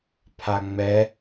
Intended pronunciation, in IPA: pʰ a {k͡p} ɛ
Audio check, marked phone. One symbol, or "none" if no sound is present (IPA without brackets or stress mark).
ŋ͡m